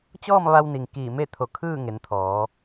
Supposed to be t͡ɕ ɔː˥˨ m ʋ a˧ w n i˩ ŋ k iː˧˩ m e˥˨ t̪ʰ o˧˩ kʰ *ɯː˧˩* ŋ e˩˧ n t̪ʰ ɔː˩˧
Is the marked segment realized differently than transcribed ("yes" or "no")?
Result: yes